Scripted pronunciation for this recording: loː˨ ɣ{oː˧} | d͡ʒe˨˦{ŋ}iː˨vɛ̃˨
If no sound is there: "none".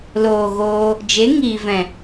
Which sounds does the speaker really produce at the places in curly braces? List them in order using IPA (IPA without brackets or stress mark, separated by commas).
oː˧, ŋ